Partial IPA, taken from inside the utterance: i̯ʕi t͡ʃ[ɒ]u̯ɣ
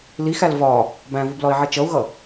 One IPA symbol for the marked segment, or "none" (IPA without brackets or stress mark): ʌ